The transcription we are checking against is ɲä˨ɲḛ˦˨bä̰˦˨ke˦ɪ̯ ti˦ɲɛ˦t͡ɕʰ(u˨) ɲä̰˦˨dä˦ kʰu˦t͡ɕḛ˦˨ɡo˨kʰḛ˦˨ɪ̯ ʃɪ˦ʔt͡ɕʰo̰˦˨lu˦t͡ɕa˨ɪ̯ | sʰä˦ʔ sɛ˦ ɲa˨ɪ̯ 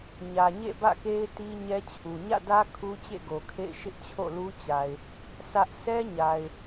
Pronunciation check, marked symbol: correct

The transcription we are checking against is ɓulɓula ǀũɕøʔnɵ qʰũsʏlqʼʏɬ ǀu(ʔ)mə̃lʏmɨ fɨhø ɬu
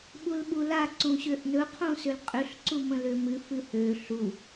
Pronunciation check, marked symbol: incorrect: none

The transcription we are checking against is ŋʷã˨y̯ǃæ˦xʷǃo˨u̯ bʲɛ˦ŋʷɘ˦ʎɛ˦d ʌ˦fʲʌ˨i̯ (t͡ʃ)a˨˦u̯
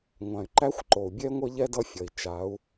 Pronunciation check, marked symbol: correct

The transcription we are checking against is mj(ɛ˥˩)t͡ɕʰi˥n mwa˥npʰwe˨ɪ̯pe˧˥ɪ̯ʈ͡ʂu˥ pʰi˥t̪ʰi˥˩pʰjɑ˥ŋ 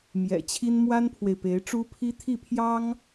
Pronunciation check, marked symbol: incorrect: ɛ̰˨˩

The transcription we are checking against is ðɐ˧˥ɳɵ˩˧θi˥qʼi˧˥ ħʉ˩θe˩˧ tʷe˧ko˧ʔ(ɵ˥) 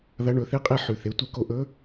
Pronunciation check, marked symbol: incorrect: ɵ˧˥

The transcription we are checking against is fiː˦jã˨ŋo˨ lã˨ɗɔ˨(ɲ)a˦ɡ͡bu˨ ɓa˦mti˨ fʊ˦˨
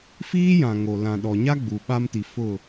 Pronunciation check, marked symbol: correct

